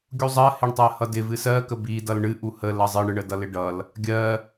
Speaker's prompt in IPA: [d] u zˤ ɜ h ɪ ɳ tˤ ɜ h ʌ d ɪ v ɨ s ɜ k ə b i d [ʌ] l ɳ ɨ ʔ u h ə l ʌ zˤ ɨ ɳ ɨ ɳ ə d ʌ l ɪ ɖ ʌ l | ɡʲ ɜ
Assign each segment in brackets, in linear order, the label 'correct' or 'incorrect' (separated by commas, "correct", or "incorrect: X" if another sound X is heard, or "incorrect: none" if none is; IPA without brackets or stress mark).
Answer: incorrect: ɡʲ, correct